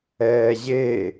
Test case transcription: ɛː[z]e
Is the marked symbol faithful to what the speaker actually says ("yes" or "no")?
no